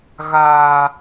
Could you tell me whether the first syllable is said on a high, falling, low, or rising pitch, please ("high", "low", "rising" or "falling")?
low